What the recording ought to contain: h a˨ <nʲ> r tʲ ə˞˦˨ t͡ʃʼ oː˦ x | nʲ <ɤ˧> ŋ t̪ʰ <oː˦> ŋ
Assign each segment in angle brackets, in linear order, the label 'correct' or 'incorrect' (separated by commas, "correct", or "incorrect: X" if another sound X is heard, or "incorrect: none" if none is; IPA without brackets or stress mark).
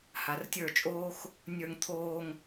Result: incorrect: none, incorrect: ə˞˧, incorrect: oː˧